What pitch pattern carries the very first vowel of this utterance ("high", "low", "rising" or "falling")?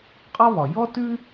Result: high